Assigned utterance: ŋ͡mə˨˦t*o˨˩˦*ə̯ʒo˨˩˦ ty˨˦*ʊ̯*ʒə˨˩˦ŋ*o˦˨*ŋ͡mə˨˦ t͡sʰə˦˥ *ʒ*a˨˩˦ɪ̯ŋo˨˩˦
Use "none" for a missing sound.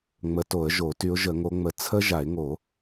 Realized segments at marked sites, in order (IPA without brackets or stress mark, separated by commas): o˨˩˦, ʊ̯, o˨˦, ʒ